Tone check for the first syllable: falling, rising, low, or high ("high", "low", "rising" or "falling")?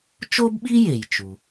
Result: high